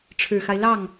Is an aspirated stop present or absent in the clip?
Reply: present